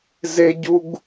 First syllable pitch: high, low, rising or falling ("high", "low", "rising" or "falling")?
high